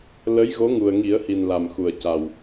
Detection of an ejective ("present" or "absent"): absent